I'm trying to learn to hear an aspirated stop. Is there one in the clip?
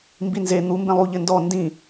no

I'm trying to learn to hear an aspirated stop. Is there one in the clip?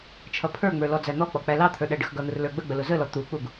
yes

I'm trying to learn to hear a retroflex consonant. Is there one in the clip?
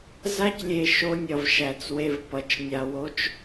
no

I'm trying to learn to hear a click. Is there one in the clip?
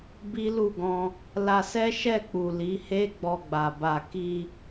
no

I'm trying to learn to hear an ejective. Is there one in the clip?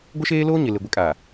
yes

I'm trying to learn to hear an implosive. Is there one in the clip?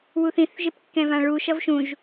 no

